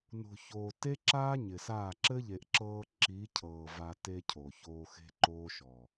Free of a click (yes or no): no